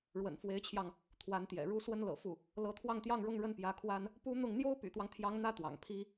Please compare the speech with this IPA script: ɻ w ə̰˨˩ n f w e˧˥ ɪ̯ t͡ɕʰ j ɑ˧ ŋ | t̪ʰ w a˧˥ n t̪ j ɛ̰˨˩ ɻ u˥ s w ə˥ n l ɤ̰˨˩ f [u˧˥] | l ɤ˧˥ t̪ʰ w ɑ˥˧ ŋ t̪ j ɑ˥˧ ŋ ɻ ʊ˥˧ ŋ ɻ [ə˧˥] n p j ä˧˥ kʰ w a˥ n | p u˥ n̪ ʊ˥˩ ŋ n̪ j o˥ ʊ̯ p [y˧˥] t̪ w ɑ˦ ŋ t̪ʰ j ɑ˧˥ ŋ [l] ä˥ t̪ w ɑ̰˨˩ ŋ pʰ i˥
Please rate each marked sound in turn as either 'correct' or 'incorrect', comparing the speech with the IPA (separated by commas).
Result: incorrect, incorrect, incorrect, incorrect